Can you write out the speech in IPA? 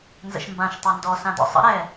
n z ə̰ ʃ m b ã ʃ tˤ a n d ɔ s ã d ɔ̰ sˤ ə̰ ɾ ɛ

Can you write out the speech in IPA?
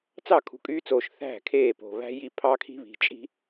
t͡s ɑ˦˨ kʰ ṳ˨ kʼ yː˦ t͡s oː˨ ʃ θ æ̤˦˨ kʰ eː˦˨ p o̤˨ β æ̤˦ j i˦ pʰ ɑ˦ kʰ i̤˦ β i̤˨ t͡ʃʼ i̤˦

